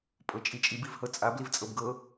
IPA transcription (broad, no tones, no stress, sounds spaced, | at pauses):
pʼ ɤ t͡ʃʼ i t͡ʃʼ i b i v h ɤ t͡sʼ a b l i v t͡sʼ ɤ b ɡ ɤ